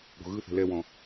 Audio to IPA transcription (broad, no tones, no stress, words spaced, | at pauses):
ɽo̤ɣɯθɛ̤ lɛwɔ̃